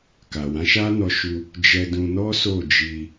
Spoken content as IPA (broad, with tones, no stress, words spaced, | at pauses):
ka˨wã˨˦ʃa˦nɔ˧ ʃu˧ | d͡ʒɛ˧dũ˧ nɔ˦so˦˨d͡ʒi˧